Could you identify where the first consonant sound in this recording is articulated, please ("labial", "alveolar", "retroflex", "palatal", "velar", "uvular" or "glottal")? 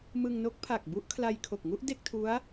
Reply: labial